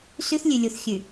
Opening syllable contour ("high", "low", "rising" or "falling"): high